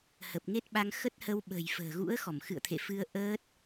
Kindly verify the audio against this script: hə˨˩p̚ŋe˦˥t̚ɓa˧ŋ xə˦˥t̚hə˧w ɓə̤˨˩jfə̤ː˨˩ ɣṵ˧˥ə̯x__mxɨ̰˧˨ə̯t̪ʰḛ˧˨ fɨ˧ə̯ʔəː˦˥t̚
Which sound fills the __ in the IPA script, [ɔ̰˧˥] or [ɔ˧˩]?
ɔ˧˩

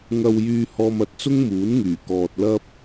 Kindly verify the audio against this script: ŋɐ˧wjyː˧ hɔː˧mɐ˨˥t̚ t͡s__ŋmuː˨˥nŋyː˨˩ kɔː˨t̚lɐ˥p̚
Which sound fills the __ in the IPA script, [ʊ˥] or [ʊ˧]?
ʊ˥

